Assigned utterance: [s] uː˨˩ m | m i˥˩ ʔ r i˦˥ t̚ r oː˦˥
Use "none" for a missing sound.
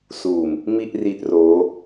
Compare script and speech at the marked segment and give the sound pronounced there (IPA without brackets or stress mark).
s